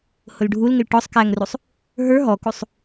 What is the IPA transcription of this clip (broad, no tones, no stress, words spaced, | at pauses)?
hʊlɖʱulŋɪl ʈɔsˤ kæŋrusˤ | ɦə˞ ɦɔkusˤ